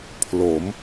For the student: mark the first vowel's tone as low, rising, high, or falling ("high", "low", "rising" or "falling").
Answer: rising